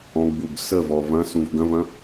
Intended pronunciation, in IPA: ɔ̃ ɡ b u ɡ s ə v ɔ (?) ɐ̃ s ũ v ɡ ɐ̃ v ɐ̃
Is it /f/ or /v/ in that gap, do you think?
v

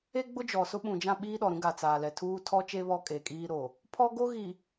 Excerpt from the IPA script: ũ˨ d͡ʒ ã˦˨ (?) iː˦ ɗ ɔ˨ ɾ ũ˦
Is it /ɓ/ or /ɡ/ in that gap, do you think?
ɓ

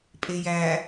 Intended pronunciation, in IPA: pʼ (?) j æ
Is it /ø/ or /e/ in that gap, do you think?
e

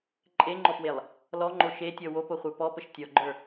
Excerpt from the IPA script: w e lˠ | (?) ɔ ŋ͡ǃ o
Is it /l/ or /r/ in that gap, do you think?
l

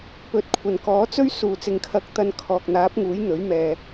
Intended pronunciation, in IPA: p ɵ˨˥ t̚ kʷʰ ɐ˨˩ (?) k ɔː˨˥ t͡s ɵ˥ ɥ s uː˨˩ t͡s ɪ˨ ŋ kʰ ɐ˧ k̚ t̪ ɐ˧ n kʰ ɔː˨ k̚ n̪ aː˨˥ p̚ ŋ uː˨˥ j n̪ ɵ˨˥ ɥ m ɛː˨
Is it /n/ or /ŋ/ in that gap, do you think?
n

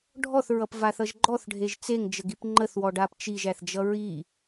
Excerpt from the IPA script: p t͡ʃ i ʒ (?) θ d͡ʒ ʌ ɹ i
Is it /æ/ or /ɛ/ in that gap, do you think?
æ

